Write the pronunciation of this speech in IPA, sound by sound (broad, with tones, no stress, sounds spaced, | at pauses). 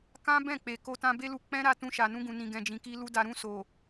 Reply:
k ã˦ b ɛ̃˦˨ k͡p e˨ k o˧ t ã˧ b e˦ l u˧ k͡p ɛ̃˦ ɾ a˦˨ t ũ˧ ʃ a˨ n ũ˧ ɡ ũ˨ n ĩ˨ ɡ ɛ̃˨ d͡ʒ ĩ˨ k i˧ l u˧ d a˨ ɾ ũ˧ s o˨